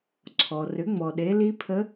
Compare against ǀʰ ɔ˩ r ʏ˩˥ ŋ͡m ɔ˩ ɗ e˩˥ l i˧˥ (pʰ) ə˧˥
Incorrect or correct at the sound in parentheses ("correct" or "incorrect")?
correct